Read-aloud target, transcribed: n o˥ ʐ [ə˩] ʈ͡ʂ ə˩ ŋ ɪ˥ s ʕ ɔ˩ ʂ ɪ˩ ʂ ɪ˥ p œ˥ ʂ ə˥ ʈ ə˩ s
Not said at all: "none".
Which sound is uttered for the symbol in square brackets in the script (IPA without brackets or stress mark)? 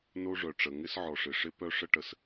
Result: œ˩